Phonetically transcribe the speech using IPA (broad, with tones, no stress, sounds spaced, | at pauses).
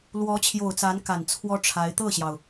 l w ɔ˧˥ t͡ɕʰ j o˨˩ ʊ̯ t͡s a˧˥ n k a˨˩ n t͡sʰ w ɔ˥ ʈ͡ʂʰ a˧˥ ɪ̯ t̪ ɤ˥˩ ɕ j ɑ˩ ʊ̯